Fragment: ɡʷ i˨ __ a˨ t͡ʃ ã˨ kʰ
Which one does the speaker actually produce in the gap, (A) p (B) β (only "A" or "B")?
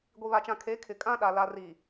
B